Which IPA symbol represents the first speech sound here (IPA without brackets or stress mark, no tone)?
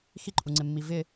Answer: x